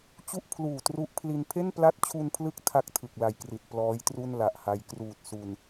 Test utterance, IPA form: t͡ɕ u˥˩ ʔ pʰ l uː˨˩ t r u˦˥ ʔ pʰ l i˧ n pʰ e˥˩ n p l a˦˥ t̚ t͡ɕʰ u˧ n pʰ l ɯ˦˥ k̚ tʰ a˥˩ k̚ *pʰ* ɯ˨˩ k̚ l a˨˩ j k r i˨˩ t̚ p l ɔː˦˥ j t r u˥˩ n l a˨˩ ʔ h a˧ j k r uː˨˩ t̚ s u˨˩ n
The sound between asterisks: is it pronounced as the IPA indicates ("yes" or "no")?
no